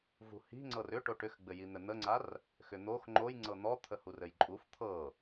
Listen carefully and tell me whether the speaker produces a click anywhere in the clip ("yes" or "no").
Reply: yes